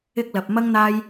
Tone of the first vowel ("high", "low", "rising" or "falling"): high